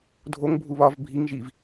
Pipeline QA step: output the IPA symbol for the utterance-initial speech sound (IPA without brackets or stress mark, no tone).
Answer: dʱ